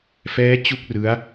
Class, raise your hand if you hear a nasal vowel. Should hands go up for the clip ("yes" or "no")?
no